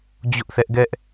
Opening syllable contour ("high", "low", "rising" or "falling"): high